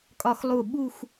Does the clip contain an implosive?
yes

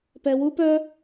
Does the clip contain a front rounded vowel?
yes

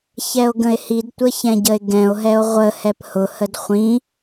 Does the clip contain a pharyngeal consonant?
no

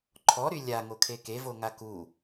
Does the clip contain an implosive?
no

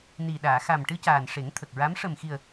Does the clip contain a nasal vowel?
no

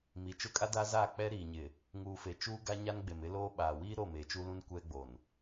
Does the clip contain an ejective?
yes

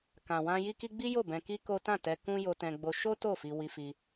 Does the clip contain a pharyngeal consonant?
no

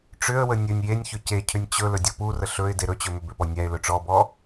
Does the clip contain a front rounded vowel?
yes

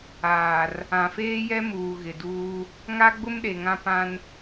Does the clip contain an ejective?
no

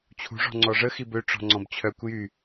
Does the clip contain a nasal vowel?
yes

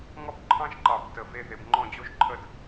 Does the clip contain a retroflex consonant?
no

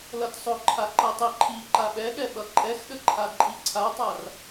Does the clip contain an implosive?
yes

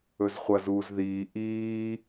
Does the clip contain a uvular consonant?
yes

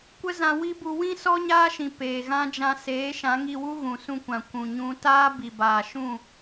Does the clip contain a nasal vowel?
yes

